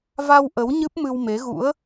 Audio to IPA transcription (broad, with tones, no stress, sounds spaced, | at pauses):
v a˧ w ʔ ə˨˦ w ɲ ɨ˦˥ p̚ m ɨ˧ w m e˨˦ ɣ ṵ˧˥ ə̯